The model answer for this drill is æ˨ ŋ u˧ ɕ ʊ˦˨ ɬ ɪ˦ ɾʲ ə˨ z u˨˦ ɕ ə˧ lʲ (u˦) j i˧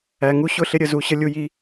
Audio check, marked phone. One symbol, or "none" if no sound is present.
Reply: u˧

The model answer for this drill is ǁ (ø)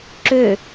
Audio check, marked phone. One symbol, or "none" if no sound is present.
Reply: ø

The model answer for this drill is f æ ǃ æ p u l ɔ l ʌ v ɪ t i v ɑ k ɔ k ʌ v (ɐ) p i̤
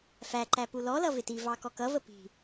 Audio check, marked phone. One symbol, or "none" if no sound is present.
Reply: ə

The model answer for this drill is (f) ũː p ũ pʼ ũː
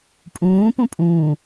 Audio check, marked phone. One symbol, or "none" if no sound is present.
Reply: pʼ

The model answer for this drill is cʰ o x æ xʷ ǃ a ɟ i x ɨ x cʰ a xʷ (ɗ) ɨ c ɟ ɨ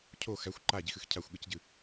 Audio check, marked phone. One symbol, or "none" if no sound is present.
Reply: ɠ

